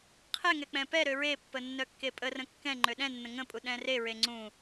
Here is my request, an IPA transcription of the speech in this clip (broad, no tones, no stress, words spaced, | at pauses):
qʰɛŋɛ k͡pɛ̃pɛɾø ɹepːə nːœkːepʼərə̃ kːɛ̃ ŋ͡ǃøɗɛ̃nːə̃ ŋə̃pʼu ɗɛ̃reɹe ŋ͡ǀũ